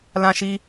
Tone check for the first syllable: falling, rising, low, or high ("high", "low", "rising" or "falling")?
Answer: low